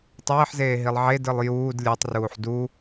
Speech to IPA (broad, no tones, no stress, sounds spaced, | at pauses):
tˤ eː ħ z eː ɦ i lˠ ʕ e d ɯ lˠ j uː d lʲ ɯː tˤ r uː ħ d u